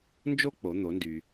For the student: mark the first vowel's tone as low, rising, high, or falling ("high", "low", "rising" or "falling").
high